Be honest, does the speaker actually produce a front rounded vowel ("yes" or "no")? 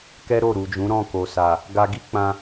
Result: no